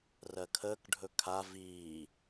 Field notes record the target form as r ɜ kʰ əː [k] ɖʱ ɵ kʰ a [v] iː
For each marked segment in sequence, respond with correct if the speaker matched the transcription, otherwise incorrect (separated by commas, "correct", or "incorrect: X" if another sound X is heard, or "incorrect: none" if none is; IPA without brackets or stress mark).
correct, correct